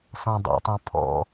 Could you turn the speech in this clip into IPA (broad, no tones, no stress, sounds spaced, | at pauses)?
s ɔ̃ dˤ ḭ tˤ ũ pʰ ɔ̰